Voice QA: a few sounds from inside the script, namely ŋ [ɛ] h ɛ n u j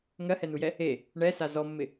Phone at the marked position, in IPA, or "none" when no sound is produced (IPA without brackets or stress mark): ɜ